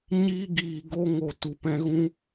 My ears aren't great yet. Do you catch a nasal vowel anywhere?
yes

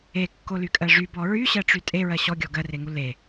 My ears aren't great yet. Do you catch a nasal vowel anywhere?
no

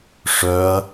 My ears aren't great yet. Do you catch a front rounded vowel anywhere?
yes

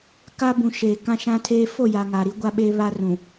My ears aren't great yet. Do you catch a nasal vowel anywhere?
yes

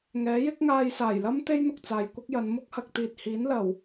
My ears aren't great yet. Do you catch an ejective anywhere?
no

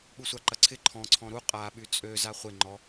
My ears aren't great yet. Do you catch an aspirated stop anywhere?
yes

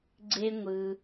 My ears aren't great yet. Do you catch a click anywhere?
yes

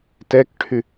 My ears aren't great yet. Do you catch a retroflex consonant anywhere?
yes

